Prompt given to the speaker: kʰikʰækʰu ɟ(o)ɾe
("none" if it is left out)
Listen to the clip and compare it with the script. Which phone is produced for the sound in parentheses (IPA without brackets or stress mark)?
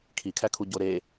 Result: o